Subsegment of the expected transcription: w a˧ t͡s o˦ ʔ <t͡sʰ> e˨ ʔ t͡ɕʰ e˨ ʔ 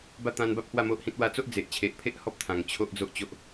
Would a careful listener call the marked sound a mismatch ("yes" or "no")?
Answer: yes